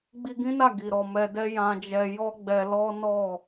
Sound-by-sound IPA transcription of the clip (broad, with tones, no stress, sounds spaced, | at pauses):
ɡ͡b i˧ ɡ ĩ˦ n a˦˨ ɡ i˨ ɾ ɔ˨ m ɛ˧ d ɛ˦ j ã˧ d͡ʒ ɛ˧ j ɔ˦ ɡ͡b ɛ˧ l ɔ˦ n ɔ˦˨